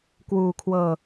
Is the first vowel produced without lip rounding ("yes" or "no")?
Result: no